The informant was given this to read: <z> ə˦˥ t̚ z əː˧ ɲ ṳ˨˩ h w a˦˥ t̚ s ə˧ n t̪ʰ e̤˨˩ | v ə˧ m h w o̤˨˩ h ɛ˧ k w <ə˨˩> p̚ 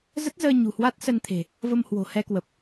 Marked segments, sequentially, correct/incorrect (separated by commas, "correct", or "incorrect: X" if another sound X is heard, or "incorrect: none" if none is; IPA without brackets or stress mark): correct, correct